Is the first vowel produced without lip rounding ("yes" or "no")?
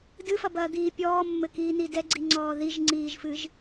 yes